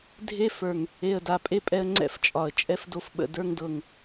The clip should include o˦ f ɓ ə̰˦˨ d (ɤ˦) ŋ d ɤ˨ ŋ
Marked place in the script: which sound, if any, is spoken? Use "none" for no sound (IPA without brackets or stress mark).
ə˞˦